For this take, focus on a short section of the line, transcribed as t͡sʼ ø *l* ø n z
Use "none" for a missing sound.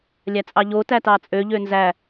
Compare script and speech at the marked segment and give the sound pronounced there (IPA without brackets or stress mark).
ʎ